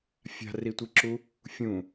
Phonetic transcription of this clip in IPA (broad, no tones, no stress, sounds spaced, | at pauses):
fʲ a̤ r i tʷ i ǁ u | fʲ ũ